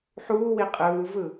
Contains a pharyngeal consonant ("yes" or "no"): yes